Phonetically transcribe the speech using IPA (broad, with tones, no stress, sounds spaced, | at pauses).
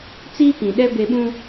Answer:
t͡s iː˦ k ĩ˨ ɗ ɛ˦ b e˦ ɓ ũ˦